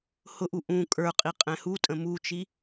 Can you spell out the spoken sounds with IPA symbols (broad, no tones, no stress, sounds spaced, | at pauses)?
h ʊ ʔ u ʔ ũ kʼ ə˞ qʼ i qʼ ɛ̃ h u tʼ ə̃ m u t͡ʃ i